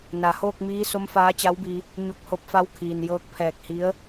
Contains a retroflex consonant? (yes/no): no